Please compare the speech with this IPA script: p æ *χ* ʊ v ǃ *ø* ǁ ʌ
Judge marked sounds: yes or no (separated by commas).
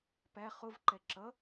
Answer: yes, no